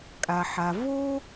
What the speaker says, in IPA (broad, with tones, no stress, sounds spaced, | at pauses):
kʼ a˩ ħ a˩ v o˥